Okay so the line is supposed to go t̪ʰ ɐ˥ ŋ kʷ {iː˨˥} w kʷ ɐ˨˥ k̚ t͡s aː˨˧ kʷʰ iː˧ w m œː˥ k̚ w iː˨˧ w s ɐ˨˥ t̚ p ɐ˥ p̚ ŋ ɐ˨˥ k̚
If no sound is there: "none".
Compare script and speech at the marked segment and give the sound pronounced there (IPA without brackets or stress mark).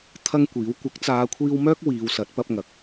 iː˨˥